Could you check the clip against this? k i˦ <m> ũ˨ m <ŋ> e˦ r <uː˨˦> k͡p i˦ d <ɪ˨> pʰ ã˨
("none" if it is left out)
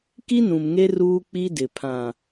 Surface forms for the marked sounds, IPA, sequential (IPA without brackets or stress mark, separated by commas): n, ŋ, uː˦, ɪ˨